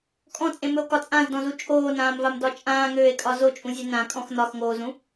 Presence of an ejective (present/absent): present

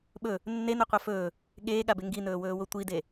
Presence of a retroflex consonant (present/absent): absent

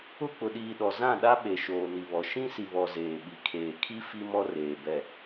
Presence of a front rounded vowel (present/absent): absent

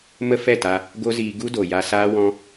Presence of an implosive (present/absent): absent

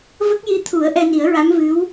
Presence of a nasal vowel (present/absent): absent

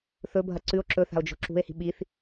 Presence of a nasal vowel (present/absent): absent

